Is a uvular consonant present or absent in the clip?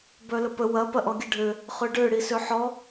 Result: present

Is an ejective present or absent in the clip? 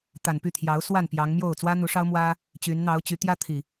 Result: absent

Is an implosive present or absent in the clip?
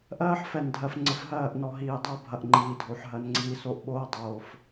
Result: present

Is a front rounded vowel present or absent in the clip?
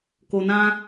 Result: absent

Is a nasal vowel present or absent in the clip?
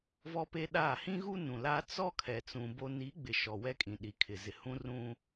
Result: present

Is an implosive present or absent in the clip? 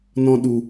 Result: present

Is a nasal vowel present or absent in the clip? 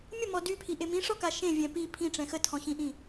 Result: present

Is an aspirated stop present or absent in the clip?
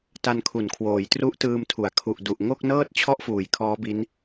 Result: present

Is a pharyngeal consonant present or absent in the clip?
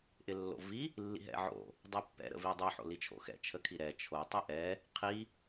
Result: present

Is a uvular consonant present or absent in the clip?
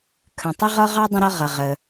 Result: present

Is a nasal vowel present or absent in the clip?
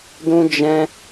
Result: present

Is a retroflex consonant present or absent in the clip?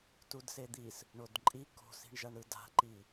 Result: present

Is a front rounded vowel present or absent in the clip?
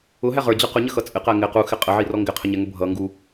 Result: absent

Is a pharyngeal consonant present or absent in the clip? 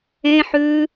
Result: present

